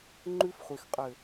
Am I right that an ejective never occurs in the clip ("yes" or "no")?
no